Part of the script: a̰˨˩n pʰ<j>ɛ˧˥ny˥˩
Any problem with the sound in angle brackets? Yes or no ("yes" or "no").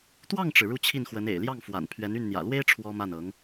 yes